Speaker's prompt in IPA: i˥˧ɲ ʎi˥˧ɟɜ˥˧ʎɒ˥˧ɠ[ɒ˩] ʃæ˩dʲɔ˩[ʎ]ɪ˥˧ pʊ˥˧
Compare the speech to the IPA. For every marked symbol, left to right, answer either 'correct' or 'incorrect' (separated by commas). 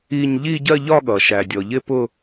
incorrect, correct